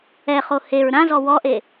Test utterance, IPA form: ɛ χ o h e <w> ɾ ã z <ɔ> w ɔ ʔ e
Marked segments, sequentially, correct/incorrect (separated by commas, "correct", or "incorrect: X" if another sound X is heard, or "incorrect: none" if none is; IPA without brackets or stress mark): incorrect: ɹ, correct